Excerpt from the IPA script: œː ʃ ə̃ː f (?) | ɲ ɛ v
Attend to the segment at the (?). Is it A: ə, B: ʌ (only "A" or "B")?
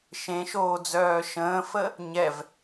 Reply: A